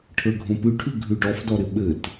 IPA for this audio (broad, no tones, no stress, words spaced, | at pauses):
ʈʰə˞ɡʱõpʉʈʰʉ ɡʱʉɖɔfdɔɾɪ ɓɘt